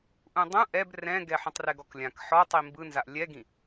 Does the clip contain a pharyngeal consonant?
yes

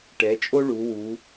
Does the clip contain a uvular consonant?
no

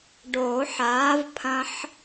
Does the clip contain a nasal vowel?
yes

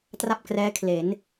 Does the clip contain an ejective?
no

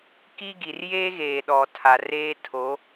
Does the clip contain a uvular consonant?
no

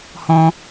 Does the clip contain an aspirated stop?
no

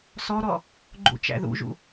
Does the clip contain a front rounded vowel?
no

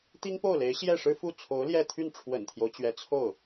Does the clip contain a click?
no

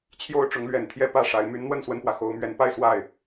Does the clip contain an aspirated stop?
yes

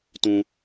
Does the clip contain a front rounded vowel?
no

